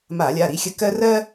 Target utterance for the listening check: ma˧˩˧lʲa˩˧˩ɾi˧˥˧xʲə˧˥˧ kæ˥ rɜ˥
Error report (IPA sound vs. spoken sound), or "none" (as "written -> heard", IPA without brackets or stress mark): æ˥ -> ɜ˥